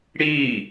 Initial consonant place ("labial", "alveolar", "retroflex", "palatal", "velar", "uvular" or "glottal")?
retroflex